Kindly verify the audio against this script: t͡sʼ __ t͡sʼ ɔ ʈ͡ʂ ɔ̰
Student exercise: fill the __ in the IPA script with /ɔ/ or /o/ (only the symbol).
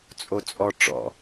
o